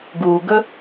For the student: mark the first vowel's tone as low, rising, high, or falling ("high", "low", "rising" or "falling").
low